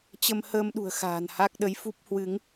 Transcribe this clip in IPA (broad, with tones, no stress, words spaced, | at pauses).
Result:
t͡ɕə˧mhəː˧mɗṳ˨˩ə̯ xa̤ː˨˩nha˦˥k̚ ɗə˨˦jfu˦˥p̚hwɨ˨˦ŋ